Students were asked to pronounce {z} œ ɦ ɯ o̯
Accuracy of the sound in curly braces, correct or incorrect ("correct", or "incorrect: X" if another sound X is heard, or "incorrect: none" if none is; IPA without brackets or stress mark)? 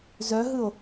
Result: correct